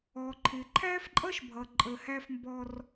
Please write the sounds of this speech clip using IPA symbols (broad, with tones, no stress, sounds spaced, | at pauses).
ɔ˨ ǃʰ ɪ˨ ǃʰ æ˦ f ǃʼ ʌ˦ ʃ bʱ ʌ˨ ǃʼ ə˨ h æ˦ f m b ɔ˦ r